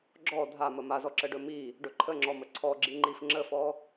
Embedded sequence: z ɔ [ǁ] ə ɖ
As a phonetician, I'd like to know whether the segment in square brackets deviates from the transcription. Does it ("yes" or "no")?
no